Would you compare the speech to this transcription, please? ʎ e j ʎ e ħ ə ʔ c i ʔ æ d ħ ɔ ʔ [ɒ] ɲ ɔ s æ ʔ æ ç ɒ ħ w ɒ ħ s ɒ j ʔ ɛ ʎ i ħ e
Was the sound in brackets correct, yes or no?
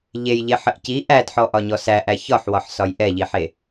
yes